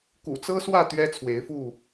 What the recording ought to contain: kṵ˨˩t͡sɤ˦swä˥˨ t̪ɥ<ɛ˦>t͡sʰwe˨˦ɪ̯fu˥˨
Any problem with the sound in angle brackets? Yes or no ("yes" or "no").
no